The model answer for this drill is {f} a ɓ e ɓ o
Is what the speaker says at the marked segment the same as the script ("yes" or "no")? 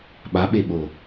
no